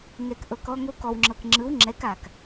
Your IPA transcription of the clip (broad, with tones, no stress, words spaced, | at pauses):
ŋɛ˨kʔɤ˨kɔ˧ŋo˧ kɔ˨wŋ͡ǁɤ˨kŋ͡ǁɯ˨˦w ŋ͡ǁɛ˨˦ka˨k